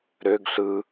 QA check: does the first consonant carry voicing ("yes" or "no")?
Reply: yes